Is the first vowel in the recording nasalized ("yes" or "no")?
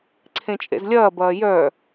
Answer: yes